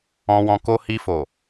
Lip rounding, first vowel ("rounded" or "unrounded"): rounded